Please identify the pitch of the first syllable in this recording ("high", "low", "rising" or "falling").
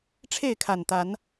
falling